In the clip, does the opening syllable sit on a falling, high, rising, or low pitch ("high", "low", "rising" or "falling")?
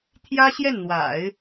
high